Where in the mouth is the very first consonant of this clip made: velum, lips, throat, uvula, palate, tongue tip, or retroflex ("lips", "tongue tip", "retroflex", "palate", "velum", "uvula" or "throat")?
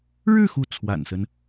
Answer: retroflex